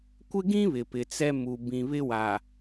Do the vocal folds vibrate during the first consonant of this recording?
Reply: no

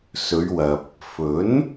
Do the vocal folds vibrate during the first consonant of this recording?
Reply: no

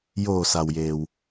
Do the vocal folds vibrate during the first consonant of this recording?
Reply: yes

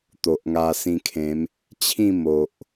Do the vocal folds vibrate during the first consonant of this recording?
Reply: no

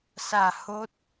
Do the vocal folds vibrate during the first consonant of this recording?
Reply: no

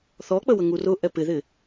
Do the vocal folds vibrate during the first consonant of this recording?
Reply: no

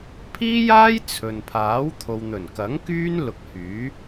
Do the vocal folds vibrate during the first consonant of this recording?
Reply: no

